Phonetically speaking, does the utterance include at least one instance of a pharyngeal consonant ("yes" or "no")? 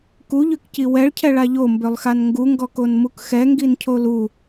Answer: no